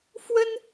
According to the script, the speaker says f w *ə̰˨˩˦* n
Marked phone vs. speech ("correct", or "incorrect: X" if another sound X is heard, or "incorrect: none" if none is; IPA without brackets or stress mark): incorrect: ə˥